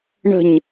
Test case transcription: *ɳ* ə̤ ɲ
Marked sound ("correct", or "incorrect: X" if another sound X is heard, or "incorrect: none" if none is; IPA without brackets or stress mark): correct